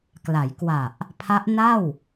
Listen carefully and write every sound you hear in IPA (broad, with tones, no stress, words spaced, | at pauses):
kla˩˦jkwa˨˩ʔ | pʰa˦˥ʔna˥˩w